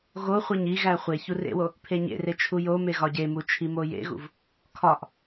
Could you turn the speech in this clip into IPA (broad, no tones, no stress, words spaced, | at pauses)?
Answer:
ɣoχʷeɲ iɣæ χʷe çurḛwo | pʰeɲḛre t͡ʃʰujome ɣɒɟemu t͡ʃʰimojḛɣṵv | kʰɒʔ